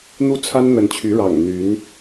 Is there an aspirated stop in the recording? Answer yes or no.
yes